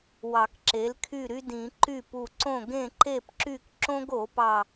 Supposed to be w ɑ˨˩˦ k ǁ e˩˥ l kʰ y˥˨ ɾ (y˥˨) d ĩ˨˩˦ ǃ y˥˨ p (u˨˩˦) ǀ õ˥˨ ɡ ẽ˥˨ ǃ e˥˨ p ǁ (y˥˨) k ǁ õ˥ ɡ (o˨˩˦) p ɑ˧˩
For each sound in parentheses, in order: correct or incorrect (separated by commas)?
incorrect, incorrect, correct, correct